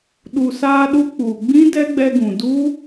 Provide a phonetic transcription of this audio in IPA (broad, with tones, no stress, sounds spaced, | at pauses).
ɗ u˨ s aː˧ ɗ u˧ k͡p u˨ ɡ͡b ĩ˦ d ɛ˦ ɡ͡b ɛ˧ ɡ ũ˨ d u˦